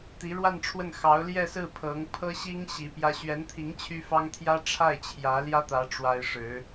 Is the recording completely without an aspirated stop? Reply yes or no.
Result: no